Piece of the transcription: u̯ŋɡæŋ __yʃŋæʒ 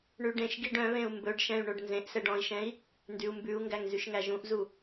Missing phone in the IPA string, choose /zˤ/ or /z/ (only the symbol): z